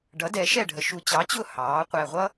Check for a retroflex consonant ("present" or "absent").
present